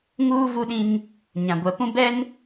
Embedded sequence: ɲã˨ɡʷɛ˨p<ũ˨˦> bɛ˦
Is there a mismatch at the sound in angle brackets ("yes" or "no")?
yes